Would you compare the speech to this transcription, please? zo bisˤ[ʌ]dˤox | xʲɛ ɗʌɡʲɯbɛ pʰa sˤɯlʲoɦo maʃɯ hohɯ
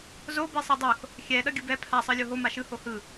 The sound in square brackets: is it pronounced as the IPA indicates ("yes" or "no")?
yes